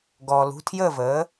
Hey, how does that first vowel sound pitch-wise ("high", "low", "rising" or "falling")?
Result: low